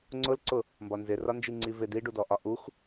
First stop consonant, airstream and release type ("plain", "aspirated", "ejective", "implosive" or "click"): click